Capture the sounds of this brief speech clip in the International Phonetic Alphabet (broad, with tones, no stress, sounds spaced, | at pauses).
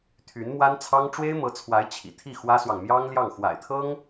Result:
t̪ʰ y˧˥ n m w a˥ n t͡sʰ ɑ˥ ŋ ʈ͡ʂ w e˥ ɪ̯ m ɤ˧˥ t͡sʰ w a˧˥ ɪ̯ t͡ɕʰ ḭ˨˩ t̪ʰ i˥˩ x w ä˥ s w ɑ˨ ŋ m j ɑ˥ ŋ l j ɑ˥˩ ŋ x w a̰˨˩ ɪ̯ t̪ʰ ɤ˥ ŋ